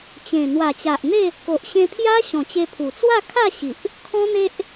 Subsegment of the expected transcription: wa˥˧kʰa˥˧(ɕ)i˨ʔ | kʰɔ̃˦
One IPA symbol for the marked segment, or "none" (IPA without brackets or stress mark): ɕ